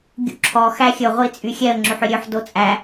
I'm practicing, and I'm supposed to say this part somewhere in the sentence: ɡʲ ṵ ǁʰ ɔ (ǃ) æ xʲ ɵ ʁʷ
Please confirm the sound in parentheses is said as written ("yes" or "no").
no